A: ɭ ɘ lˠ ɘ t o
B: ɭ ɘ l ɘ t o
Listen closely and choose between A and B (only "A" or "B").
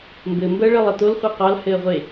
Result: A